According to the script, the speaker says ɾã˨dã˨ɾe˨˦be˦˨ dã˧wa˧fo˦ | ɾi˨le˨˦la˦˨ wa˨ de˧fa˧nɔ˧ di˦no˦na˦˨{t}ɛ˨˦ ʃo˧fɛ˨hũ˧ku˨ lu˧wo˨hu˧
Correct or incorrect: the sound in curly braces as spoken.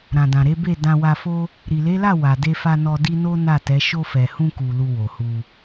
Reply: correct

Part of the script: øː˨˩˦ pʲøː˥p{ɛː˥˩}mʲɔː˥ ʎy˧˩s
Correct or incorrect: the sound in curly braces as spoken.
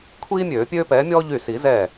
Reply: incorrect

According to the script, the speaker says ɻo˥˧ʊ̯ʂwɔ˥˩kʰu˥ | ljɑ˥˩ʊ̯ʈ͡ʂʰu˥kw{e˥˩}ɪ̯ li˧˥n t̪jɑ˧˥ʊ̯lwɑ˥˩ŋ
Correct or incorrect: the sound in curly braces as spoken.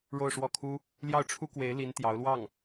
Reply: incorrect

